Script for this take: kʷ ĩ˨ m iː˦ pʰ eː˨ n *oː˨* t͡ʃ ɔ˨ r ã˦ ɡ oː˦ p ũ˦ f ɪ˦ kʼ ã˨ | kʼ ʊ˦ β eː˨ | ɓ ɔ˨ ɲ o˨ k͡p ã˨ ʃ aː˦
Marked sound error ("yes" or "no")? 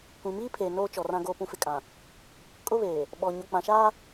yes